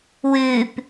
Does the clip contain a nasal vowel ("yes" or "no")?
no